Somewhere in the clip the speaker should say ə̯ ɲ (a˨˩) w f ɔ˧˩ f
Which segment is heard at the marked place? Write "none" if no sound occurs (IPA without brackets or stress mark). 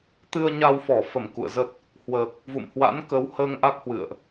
a˧